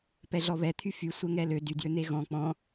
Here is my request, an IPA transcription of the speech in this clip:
p ɛ ɮ ɔ β ɛ t̪ʰ y f y sʷ ɛ ŋ ɛ l ø d y d j ø n̪ e ɣ ɔ̃ k͡p ɔ̃

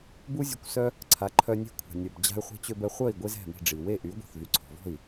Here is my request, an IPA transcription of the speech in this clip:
b u˥ zʲ ø˧ kʷ s œ˥ | ǀʰ a˩˥ ǃʰ œ˧ nʲ ɛ̤˥˩ kʷʰ a̤˩ nʲ œ˩ b d͡ʑ a̤˧ y̯ χʷ i̤˧ t͡ɕ ø˧ b ɛ˧ χʷ œ˥˩ i̯ ɡʷ e˥ z ɛ̤˥˩ m i̤˥˩ ɖ͡ʐ i˩ w e˥˩ ʔ y˩˥ ɡʷ i̤˩ θ v y˩˥ ǀʰ ɔ̤˩ v ɔ̤˥˩ i̯

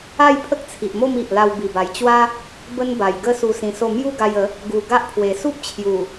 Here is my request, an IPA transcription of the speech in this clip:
a˥˧ j pʰ ə˦ k̚ t͡sʰ i˨ ʔ m o˥˧ m i˨ ʔ l a˧ w b i˨˩ b a˨˩ j t͡ɕ w a˦ | b ə˦ n b a˨˩ j ɡ ə˥˧ s u˧ s ĩ˧ s o˥˧ m j u˥˧ ɡ a˧ j ə˨˦ | ɡ u˨˩ ɡ a˦ ʔ pʰ w e˨˩ s u˦ p̚ t͡ɕʰ j u˨˩

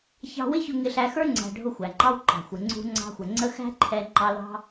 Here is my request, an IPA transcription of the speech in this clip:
ç ɑ̤˧ w ɪ˦ ç ʊ˧ ŋ ɪ˧ ɬ æ˧ x ə˞˦ ŋ͡ǀ æ̤˧ ɖʱ ʊ˦˨ xʷ æ˨ ŋ͡ǃ ɑ˦ w ǃ ɑ̤˨ xʷ ɪ˨ ŋ͡ǀ ṳ˧ ŋ͡ǀ ɑ̤˧ xʷ ə˨ ŋ͡ǀ ə˦ x æ̤˦ ǃʰ ɛ˧ ŋ͡ǃ ɑ˧ l ɑ̤˦

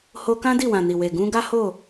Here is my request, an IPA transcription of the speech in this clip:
h o˧ k ã˦ d i˦˨ w ã˨ n i˨ w e˨ ɡ ũ˧ ɡ a˦ h o˦˨

